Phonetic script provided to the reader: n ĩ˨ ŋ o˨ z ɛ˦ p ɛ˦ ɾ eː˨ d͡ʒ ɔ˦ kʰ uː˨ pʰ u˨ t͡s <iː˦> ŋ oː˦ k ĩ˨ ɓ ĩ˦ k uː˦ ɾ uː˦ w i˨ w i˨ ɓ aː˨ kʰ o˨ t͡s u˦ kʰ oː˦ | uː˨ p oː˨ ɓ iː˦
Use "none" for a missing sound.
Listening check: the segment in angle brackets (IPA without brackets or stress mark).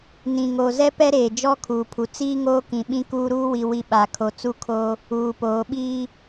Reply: iː˦